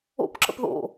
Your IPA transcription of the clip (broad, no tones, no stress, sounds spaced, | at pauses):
o̰ p ǁ ə̰ p ð o̰